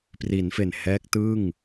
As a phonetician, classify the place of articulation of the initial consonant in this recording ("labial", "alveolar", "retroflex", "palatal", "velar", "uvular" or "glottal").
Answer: labial